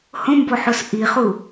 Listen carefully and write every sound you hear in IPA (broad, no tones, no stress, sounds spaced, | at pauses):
h õ m b o ħ o s ʔ i χ u